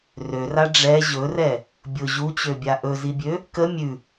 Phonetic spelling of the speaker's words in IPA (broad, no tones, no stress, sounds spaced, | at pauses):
r ø r a ɖ͡ʐ ɛ ʑ ɵ r ɛ | bʲ ʊ ʑ u t͡ɕ ø bʲ a ʔ ɵ z i bʲ ø | k ə mʲ ʉ